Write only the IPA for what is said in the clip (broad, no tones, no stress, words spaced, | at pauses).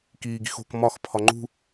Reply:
kiːɡi̤xo̤k mɒx pʰɒŋ͡ǃṳ